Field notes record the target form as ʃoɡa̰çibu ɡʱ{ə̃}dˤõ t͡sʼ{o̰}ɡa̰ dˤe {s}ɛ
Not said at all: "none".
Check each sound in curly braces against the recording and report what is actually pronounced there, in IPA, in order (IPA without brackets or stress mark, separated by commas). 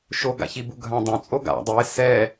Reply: ã, o, s